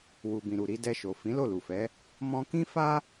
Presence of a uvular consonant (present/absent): absent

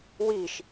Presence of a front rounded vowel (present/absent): absent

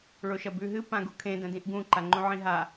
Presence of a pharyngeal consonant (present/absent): present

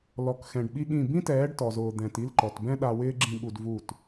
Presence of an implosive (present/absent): present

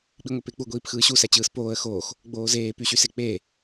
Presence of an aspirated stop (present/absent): absent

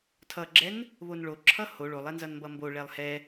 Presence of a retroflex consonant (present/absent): present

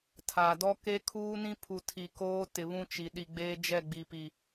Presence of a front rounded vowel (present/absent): absent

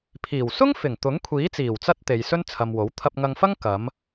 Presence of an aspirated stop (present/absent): present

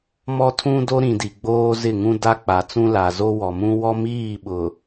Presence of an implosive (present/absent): present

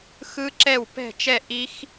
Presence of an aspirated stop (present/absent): absent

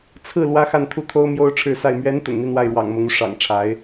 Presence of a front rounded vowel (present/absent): absent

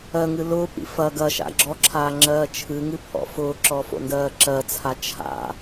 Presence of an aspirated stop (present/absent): present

